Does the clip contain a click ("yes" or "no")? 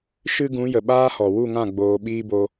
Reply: no